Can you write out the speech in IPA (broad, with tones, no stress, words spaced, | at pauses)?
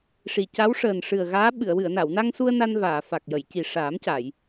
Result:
ʂi˨˩ ca˧˥wʂəː˨˩nʂɨ˨˩ə̯ ɣaː˧˥ɓɨ˨˩˨ə̯ wɨ˨˩˨ə̯na˨˩˨wna˧ŋsu˧ə̯ na˧nvaː˨˩˨ fa˨˩k̚jə˨˩˨jci˨˩ ʂaː˨˩˦mca˨˩˨j